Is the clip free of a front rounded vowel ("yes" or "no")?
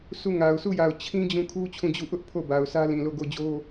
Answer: yes